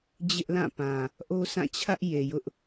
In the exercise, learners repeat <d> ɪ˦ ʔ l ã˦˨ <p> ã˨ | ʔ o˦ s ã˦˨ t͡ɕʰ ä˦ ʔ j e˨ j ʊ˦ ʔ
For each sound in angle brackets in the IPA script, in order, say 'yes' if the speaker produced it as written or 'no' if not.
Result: no, yes

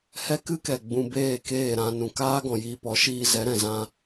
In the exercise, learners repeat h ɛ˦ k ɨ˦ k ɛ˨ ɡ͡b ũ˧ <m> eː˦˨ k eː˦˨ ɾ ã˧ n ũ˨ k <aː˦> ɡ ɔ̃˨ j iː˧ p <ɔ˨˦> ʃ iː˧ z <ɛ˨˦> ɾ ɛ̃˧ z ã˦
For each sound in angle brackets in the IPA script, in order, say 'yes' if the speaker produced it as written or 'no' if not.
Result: no, yes, yes, yes

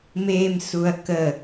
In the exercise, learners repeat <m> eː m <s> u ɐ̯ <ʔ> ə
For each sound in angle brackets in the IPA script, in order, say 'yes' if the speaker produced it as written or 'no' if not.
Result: yes, yes, no

